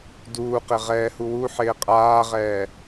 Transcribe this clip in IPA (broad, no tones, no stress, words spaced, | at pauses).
duːqɪ ʁɛːhuwuħɪː qʼaːʁɛː